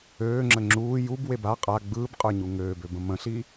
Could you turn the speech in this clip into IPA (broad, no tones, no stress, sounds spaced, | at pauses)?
øː ŋ͡ǁ ə ŋ͡ǁ uː j u b w e b a qʼ a ɡ͡b ɯː b qʼ ə˞ ɲ u ŋ øː b ø b ə̃ m ə̃ ɬ i